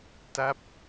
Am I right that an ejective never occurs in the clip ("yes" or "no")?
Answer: yes